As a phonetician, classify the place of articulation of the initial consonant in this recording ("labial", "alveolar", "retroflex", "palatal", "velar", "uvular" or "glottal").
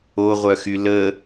uvular